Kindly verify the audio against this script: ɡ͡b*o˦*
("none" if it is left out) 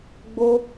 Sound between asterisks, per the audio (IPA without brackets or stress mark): o˦